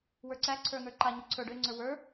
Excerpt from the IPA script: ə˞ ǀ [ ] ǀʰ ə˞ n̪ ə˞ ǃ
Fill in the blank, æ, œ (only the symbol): æ